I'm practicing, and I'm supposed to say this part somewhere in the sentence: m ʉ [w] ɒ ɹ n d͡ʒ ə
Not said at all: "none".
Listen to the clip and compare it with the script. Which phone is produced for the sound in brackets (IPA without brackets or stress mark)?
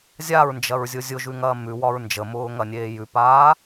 w